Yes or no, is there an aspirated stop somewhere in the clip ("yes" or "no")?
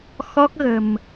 no